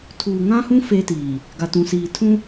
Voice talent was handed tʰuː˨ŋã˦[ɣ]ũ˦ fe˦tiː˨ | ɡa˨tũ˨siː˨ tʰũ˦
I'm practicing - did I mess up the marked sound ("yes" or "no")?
yes